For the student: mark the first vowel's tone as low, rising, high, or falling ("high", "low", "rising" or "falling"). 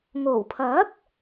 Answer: low